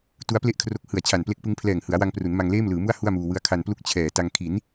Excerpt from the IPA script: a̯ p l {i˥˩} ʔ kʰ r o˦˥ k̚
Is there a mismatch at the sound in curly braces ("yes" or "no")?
yes